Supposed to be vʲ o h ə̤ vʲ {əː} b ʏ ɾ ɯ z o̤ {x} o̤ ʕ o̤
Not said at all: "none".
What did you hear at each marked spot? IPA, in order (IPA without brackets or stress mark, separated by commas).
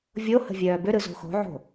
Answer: œː, x